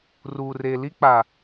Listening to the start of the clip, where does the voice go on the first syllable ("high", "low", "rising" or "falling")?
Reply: low